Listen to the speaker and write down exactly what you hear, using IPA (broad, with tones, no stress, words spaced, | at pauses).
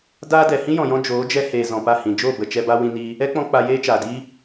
daː˦dɛ˨ hĩ˦jɔ̃˨jɔ̃˧ d͡ʒoː˨˦d͡ʒɛ˧heː˨ zɔ̃˨pa˦˨hĩ˨ d͡ʒoː˦˨bə˨ t͡ʃɛ˧ba˦ wĩ˧niː˧ | ɛ˦k͡pɔ̃˧ k͡pa˧jeː˦t͡ʃaː˨diː˦